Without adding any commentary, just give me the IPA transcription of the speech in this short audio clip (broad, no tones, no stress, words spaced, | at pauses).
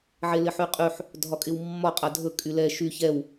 ʕelɪħyqʼyħ | dʱɒkʼɪwmːɒ qʼadʱɵ kʼylɛ ʃy çɛw